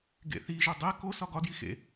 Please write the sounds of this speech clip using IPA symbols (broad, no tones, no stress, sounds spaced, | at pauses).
ɡ ḛ θ i ʒ o dˤ e k o s ɒ ɡ ɒ d j i x ḛ